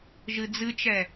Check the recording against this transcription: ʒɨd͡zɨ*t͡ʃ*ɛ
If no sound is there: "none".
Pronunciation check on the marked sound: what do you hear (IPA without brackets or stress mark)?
t͡ʃ